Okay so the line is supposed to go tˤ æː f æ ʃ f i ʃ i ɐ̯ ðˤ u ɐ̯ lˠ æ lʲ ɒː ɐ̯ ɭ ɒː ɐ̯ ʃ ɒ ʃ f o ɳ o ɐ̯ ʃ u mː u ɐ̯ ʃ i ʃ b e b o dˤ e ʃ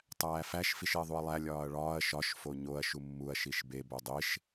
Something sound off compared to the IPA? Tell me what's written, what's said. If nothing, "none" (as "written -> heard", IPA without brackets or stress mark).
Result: ɳ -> ɲ